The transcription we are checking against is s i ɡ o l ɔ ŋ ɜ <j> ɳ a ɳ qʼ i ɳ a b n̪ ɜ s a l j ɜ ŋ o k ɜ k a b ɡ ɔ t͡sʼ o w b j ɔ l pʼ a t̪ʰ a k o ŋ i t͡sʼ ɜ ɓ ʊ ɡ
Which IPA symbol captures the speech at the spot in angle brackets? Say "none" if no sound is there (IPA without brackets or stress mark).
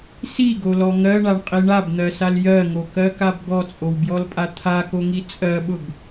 none